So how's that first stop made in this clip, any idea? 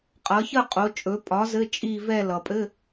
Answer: ejective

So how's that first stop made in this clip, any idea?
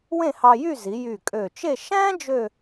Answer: ejective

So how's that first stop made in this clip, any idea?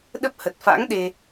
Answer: implosive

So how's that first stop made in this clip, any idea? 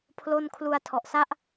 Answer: aspirated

